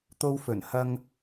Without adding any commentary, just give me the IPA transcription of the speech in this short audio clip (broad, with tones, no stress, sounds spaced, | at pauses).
t̪ o˧ w f ɵ˨˩ n h ɐ˥ ŋ